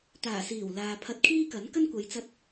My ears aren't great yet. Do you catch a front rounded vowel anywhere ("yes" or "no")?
no